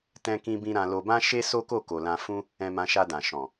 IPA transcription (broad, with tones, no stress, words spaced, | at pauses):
tɛ̃˧kĩ˧bĩ˧ ɾã˧lo˧bã˦ʃe˦ so˦ko˦˨ko˨ lã˧fũ˦ | ɛ̃˧mã˧ʃa˧dã˨ ʃɔ̃˨